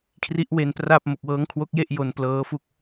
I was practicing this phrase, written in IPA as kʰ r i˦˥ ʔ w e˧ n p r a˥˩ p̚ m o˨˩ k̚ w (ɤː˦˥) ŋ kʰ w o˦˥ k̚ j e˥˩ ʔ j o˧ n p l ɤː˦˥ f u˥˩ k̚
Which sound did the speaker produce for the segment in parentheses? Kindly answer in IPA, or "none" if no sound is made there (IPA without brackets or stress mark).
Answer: ɤː˦˥